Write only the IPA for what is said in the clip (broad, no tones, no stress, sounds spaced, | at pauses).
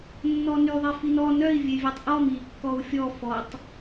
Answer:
nː ɔ n y ðˤ e f i n ɔ n œ i̯ vʲ e vʲ e tˤ ʔ ɔ m i kː ɔ u̯ fʲ ɔ f ɔ tˤ